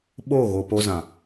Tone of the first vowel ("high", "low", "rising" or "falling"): falling